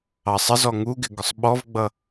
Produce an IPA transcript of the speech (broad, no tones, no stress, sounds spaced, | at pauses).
ɑ sˤ ə z ɔ ŋ u ɡ ɪ ɡ ʊ sˤ ɓ ɔ v ɡ͡b ʌ